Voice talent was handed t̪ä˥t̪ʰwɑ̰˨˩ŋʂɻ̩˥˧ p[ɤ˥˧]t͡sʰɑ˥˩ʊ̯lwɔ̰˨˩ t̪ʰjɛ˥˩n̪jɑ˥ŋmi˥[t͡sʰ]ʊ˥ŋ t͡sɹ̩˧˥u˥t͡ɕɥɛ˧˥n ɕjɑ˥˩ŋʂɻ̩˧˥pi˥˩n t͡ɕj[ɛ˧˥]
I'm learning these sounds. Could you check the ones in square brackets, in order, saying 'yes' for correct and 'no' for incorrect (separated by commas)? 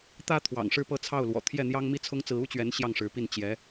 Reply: yes, yes, yes